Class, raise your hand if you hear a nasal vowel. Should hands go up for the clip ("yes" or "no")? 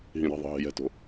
yes